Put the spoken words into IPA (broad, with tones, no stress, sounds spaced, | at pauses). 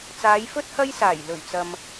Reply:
t͡s aː˨˧ j f ɵ˥ t̚ h ɐ˥ j s aː˨˩ j l ɵ˨˩ ɥ t͡s ɐ˨ m